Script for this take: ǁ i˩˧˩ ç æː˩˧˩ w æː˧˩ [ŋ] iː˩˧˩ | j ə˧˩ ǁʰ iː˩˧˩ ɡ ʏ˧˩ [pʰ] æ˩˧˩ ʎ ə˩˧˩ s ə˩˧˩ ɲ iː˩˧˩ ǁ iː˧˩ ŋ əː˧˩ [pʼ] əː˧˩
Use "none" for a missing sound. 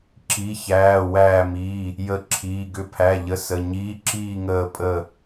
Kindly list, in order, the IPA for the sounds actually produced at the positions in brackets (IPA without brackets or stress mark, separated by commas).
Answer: m, pʰ, pʼ